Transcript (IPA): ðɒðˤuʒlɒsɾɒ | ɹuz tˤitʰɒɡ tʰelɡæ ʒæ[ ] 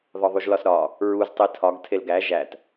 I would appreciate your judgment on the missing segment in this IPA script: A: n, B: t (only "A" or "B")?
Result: B